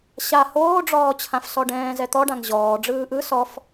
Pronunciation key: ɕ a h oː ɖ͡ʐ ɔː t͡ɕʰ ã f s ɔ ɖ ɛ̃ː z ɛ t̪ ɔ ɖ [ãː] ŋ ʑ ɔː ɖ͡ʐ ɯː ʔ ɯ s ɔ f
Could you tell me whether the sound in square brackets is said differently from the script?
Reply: yes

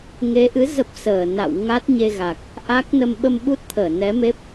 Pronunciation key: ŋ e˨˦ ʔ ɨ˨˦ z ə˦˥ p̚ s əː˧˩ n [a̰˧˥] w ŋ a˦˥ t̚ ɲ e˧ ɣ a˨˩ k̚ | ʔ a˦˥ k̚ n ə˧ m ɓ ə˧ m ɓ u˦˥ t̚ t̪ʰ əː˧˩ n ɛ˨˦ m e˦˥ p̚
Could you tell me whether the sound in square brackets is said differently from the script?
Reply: yes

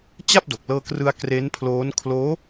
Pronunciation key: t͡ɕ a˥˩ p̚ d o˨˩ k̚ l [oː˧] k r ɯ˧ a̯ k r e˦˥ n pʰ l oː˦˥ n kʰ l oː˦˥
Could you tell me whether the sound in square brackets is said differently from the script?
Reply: yes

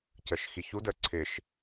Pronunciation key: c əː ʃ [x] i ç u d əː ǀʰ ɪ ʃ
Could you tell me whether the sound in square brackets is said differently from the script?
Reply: no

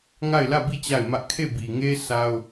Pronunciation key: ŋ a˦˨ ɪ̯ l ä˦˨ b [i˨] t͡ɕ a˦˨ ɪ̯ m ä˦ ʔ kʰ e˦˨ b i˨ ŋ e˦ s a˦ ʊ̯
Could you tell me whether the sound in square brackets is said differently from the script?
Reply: yes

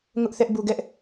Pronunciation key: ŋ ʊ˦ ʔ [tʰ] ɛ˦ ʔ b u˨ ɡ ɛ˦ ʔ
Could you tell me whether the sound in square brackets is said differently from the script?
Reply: yes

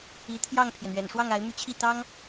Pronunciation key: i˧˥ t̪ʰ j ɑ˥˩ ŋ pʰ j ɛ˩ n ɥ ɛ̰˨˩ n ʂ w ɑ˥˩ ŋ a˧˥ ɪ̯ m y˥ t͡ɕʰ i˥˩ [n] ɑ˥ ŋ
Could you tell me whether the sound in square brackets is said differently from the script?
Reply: yes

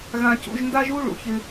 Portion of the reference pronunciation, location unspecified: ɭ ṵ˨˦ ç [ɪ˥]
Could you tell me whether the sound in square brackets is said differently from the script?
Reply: no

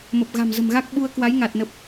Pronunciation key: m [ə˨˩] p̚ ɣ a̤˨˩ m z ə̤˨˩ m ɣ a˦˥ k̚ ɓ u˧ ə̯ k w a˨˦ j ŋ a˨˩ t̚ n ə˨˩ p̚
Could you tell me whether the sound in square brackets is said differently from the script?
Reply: no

